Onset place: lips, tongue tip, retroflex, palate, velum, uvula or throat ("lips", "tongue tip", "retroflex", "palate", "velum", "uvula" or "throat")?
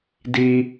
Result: tongue tip